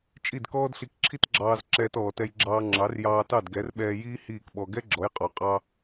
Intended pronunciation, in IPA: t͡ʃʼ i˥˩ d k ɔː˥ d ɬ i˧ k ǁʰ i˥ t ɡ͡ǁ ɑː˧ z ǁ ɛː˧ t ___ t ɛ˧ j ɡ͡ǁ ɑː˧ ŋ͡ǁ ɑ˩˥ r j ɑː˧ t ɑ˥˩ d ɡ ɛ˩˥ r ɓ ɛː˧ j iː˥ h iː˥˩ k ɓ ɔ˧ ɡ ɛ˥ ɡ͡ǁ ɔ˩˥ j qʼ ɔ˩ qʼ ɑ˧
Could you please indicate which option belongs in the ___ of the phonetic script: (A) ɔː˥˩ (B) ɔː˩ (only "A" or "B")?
B